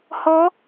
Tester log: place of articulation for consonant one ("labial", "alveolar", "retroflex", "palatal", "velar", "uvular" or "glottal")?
glottal